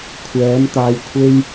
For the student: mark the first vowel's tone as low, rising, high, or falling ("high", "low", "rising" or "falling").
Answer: rising